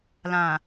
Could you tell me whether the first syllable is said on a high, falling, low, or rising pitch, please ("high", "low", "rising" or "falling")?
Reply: low